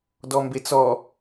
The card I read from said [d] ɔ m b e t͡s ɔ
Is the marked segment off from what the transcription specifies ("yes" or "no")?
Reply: no